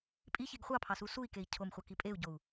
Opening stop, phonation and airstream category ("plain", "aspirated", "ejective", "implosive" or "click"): ejective